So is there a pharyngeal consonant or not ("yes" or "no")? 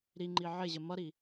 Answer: yes